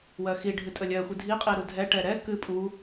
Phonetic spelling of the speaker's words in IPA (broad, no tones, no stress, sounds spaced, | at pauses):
w ɜ x i ɖʱ ɨ tʼ ə lʲ ɜ xʷ ɨ dʱ i qʼ i ɾ u dʱ ɛ ʈ ɛ ɾ ɛ k ɨ pʼ u